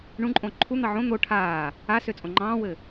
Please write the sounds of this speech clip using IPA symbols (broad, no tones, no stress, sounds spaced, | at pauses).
ɳ ũ ǃʼ õ ǃʰ u n̪ ɑ ʕ õ n̪ o ʈʰ aː | a s ø t͡sʼ õ ŋ͡ǃ ɑ̃ː w ɘ